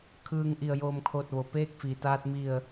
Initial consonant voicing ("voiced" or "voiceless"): voiceless